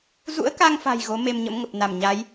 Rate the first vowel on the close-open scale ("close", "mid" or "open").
close